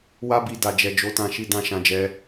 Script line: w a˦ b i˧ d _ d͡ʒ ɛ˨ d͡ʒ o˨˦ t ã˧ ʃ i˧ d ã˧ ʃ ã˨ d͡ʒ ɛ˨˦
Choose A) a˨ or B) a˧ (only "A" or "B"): A